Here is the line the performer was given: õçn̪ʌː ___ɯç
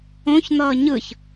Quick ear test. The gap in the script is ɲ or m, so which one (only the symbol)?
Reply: ɲ